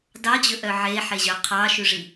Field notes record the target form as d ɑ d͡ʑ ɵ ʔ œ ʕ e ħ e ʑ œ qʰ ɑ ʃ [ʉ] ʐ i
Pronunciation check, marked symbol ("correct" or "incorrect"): correct